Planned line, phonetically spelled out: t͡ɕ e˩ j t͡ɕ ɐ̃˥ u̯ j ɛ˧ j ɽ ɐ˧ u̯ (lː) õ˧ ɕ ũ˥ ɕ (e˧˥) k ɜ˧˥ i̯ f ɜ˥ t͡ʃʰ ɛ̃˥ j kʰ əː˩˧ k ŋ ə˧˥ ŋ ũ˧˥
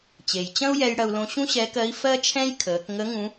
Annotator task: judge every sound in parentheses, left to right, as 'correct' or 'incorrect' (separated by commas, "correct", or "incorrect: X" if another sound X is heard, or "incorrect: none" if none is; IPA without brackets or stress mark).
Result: incorrect: l, incorrect: ɛ˧˥